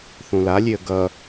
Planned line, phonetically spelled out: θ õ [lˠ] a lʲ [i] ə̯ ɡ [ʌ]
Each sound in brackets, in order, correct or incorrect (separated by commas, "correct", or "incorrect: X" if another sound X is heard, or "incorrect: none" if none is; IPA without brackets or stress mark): incorrect: l, incorrect: e, correct